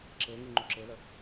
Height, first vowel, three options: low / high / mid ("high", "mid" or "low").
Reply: mid